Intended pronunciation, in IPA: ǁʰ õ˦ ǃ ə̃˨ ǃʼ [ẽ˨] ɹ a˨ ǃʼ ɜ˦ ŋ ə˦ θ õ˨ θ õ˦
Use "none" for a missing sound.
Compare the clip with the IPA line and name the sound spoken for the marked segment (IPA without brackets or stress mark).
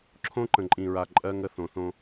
ĩ˨